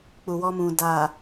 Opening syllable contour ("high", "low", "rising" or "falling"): low